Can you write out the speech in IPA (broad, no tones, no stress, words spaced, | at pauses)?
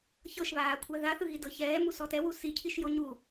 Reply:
çɤʃβaːkʷʰa ðaθɯɣi dɤçɛː musɔtɛwu sicʰiʃ joɲu